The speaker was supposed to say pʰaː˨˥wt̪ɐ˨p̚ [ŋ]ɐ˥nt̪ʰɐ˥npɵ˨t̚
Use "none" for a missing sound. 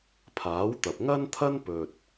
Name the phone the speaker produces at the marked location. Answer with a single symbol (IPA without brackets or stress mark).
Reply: ŋ